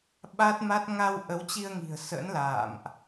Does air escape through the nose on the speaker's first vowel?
no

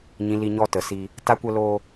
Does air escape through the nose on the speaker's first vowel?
yes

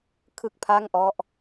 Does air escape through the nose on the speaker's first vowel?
no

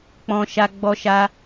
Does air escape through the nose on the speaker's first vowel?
yes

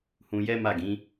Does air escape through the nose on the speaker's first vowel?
yes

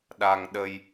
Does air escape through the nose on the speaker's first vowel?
no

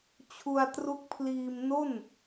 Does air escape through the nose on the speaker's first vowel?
no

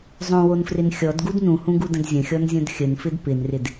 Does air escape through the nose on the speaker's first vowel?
yes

